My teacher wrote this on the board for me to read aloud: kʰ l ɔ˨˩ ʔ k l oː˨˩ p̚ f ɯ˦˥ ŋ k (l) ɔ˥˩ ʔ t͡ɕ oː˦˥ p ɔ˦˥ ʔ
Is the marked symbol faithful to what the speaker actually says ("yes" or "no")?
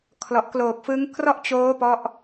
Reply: no